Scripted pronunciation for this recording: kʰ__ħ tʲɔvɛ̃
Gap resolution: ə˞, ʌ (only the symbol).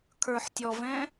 ə˞